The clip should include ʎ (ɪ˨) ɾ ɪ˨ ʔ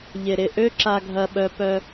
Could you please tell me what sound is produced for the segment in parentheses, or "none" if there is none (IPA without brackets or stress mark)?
ɪ˨